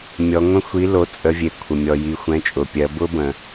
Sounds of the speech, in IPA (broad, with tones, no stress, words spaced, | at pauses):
mʲɔ˩˧ŋʷə̃˦˥xʷi˨˥ lo˩˧˩t͡sʼə˩˧vʲe˩ kʷʰə˩mʲɔ˩ji˩˧ xʷɛ̃˩˧˩t͡ʃʼʊ˩pʲɜ˩˧ bʊ˦˥bə̃˩